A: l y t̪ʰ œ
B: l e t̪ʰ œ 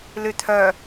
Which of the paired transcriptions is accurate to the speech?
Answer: A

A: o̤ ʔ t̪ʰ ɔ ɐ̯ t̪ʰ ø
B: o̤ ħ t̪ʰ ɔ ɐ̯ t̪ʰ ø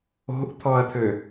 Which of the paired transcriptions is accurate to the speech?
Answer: A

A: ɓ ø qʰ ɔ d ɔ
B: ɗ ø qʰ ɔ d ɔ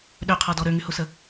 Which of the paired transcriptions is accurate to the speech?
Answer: B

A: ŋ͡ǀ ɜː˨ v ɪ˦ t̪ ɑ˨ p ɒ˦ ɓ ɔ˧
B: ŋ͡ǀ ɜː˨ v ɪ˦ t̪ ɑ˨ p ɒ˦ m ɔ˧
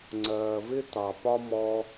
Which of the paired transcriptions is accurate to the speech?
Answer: B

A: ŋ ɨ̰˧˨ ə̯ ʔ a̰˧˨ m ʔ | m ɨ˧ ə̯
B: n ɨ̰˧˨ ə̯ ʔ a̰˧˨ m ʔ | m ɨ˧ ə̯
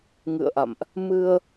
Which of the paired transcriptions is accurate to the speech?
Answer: A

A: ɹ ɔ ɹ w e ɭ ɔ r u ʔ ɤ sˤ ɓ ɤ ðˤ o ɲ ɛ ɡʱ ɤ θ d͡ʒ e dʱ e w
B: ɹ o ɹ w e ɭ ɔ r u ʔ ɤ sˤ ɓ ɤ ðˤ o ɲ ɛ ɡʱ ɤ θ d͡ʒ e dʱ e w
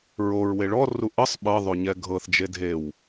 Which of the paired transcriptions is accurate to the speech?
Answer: B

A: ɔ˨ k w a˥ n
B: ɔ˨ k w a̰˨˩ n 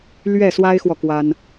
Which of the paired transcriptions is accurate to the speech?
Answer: A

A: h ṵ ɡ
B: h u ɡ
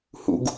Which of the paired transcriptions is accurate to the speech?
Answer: A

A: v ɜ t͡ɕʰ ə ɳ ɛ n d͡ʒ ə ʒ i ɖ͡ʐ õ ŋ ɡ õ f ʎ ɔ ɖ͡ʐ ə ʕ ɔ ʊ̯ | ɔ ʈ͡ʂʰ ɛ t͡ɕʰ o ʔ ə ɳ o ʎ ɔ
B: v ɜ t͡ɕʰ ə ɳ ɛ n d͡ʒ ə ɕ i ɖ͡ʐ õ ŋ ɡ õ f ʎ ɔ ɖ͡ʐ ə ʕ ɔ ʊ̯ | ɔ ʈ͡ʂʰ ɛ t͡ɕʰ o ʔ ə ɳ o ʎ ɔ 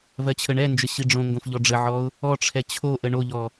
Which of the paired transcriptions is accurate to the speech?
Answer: B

